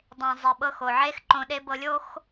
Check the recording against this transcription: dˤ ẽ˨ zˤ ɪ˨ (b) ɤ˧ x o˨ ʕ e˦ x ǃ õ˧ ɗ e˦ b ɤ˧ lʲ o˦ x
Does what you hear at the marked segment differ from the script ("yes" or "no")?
yes